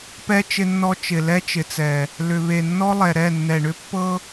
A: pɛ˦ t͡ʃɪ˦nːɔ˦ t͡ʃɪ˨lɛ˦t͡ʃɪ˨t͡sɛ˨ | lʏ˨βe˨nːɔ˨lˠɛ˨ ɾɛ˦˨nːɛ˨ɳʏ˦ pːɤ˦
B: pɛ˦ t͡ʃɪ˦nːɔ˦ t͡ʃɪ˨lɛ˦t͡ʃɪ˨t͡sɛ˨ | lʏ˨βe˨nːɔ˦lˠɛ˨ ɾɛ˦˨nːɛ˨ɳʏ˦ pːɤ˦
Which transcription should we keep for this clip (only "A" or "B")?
B